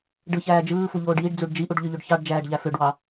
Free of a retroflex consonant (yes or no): no